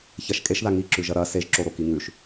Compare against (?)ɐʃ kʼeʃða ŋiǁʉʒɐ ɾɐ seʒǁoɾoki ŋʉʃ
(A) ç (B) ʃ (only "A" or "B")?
A